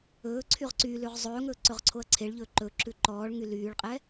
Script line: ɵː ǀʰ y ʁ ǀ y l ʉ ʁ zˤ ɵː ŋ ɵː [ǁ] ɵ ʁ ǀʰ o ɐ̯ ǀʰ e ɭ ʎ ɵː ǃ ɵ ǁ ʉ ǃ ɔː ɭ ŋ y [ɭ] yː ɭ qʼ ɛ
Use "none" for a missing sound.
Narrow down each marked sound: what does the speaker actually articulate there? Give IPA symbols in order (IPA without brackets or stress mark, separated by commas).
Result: ǀ, l